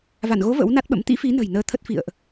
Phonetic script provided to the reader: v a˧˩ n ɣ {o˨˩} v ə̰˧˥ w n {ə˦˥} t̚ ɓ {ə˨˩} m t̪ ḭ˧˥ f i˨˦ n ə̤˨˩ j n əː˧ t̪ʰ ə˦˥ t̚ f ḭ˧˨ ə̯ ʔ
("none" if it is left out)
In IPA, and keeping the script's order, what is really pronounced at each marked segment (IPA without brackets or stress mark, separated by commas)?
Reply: o˨˦, a˦˥, ə̰˧˥